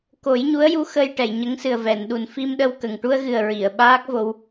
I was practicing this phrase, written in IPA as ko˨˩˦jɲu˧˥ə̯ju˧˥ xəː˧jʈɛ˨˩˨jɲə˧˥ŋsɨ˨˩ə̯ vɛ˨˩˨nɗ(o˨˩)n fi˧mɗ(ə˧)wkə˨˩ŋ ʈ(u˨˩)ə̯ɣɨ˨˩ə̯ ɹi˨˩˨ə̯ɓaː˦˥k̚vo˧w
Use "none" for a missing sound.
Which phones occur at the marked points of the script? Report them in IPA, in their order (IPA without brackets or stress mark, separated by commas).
u˨˩, ə˧, u˧